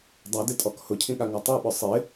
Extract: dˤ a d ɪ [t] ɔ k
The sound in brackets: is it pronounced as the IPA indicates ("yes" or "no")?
no